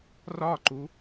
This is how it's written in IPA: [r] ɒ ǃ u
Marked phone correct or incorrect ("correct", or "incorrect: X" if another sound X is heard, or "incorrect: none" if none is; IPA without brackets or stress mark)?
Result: correct